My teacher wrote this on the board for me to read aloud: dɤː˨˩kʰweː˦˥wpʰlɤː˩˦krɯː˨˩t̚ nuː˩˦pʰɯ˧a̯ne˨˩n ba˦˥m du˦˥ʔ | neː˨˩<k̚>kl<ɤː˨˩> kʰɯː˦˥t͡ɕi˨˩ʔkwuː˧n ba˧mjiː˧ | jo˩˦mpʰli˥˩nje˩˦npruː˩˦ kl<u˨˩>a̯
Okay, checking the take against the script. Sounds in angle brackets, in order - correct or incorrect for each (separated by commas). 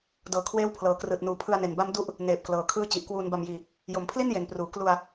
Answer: incorrect, incorrect, incorrect